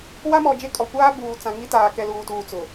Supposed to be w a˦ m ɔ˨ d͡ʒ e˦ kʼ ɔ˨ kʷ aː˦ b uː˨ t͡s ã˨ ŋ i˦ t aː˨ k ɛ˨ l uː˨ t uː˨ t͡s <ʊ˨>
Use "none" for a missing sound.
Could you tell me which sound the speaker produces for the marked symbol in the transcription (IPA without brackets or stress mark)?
ʊ˨